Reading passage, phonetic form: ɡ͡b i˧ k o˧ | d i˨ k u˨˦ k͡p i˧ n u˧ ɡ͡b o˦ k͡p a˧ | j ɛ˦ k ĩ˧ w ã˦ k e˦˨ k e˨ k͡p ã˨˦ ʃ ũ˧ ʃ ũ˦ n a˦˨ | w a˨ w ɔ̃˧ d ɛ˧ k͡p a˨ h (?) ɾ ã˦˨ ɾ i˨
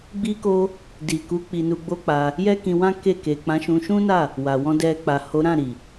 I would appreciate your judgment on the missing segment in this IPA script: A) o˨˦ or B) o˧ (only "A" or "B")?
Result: A